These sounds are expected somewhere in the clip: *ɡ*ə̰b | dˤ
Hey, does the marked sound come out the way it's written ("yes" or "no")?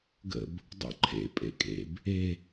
yes